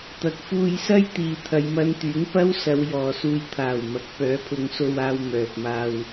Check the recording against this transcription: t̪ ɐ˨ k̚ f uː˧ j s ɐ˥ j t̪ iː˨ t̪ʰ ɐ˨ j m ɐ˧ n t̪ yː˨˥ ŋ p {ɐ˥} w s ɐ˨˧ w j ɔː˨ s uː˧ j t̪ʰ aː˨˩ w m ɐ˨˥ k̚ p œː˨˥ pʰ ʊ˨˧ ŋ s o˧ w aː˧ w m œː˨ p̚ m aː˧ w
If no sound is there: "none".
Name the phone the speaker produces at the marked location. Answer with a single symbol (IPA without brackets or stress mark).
ɐ˥